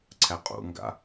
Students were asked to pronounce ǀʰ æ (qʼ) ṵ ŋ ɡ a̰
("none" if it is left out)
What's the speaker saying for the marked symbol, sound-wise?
qʼ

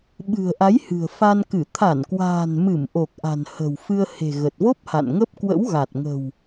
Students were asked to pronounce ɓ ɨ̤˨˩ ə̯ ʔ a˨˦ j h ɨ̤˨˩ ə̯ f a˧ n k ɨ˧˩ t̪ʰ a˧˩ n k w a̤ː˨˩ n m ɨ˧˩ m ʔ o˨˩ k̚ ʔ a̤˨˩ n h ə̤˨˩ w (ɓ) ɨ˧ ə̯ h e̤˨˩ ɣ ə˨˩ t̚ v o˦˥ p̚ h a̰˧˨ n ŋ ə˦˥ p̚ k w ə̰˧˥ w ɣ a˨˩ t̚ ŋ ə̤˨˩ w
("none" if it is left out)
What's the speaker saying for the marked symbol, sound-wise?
f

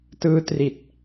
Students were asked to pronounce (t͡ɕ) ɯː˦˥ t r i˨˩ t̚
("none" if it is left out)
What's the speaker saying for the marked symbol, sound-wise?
t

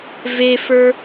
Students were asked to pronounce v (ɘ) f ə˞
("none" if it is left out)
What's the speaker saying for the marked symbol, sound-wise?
e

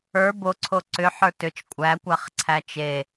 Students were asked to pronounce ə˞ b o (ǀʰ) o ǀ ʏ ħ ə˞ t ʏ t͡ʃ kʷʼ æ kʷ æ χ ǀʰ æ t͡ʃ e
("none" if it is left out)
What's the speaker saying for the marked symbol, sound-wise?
ǀʰ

